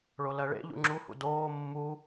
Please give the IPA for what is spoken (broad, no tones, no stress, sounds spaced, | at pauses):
ɭ o l ɜ ɭ ḛ ʎ ṵ ŋ͡ǁ u h ṵ d oː mː u